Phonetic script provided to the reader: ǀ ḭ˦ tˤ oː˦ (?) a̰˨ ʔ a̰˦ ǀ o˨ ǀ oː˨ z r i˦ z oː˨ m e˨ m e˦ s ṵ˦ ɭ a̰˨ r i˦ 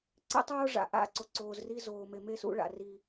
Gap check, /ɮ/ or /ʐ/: ʐ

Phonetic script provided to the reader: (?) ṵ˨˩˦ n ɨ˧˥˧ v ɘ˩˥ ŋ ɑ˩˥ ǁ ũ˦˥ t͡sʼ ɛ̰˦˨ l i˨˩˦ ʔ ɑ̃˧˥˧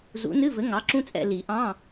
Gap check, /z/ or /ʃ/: z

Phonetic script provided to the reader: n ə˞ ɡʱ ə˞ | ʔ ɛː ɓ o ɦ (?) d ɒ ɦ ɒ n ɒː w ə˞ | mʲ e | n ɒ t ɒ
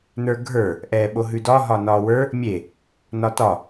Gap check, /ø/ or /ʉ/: ʉ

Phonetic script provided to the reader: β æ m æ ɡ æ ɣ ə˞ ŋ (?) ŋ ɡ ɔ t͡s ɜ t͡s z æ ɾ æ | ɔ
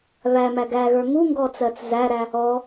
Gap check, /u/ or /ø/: u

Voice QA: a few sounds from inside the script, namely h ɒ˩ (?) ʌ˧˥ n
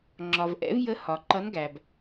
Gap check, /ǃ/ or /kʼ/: ǃ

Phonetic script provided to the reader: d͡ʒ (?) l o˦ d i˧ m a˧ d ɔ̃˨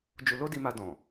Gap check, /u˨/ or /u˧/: u˧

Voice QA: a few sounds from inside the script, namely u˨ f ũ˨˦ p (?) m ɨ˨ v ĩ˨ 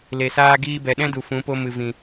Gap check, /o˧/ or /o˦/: o˧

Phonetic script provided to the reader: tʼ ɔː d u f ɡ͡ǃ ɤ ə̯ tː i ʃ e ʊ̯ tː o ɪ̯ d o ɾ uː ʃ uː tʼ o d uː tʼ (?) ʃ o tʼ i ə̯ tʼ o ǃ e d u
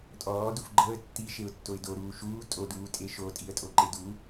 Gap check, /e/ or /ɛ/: e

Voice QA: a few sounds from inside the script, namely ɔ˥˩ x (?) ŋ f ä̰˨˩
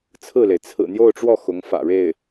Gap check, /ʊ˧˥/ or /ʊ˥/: ʊ˧˥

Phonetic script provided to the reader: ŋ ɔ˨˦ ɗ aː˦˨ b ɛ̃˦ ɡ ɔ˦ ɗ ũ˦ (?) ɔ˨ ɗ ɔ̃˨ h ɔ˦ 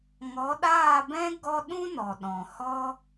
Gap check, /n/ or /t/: n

